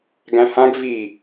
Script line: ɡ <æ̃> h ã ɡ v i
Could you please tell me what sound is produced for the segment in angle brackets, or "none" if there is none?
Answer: æ̃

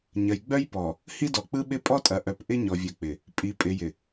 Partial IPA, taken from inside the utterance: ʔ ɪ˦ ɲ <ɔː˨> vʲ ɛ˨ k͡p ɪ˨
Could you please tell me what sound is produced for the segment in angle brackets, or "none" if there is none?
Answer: ɔ˨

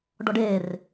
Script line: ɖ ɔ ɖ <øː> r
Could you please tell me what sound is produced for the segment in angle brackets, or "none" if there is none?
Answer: eː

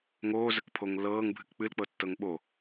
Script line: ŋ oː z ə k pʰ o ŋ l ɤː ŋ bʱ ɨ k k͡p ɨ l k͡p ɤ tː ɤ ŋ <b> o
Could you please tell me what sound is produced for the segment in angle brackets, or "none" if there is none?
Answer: ɓ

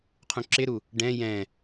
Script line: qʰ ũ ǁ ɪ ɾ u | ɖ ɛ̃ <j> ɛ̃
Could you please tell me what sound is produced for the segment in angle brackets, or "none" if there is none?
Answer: j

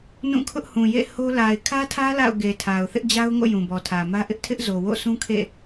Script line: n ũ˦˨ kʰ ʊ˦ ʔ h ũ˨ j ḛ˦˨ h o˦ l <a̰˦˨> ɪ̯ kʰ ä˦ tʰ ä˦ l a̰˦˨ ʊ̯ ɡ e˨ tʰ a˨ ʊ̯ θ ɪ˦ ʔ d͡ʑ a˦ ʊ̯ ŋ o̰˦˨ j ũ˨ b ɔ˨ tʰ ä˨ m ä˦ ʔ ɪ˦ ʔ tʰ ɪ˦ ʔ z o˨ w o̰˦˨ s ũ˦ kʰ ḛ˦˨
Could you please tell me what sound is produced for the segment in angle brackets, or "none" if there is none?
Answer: a˨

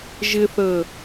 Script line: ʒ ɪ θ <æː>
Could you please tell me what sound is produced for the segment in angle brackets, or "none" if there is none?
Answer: əː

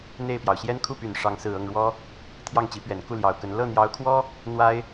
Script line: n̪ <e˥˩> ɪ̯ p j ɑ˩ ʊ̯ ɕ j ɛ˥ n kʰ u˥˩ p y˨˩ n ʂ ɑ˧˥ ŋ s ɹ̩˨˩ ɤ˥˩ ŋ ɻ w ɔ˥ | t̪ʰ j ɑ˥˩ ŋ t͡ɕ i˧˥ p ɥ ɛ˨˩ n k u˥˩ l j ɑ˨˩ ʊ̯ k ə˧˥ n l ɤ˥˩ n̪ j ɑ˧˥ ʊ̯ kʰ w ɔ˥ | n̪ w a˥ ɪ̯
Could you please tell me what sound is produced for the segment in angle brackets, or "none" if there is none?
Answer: e˥˩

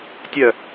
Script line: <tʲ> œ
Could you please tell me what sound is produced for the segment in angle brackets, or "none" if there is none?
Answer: tʲ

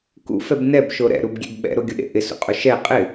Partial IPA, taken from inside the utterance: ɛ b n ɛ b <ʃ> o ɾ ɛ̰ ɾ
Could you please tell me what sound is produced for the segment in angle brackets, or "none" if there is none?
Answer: ʃ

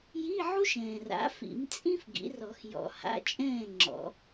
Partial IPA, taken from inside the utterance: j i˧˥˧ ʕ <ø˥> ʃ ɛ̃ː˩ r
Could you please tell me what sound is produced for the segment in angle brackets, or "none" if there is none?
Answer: u˥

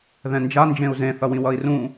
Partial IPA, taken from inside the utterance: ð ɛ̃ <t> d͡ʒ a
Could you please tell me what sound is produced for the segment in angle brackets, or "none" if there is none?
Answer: n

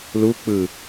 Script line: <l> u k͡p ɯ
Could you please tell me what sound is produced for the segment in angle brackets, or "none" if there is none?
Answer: l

